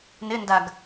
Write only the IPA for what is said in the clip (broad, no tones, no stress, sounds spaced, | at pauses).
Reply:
n ɪ n d a ɡ